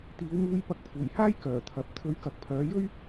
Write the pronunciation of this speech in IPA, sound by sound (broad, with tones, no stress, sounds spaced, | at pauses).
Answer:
t̪ iː˨˧ w m uː˧ j p ɐ˧ k̚ pʰ uː˨˩ j h aː˥ j k œː˨˩ t̪ʰ ɐ˨ p̚ t̪ʰ ɵ˨˧ ɥ k ɐ˨˥ k̚ pʰ œː˨˧ j ɵ˥ ɥ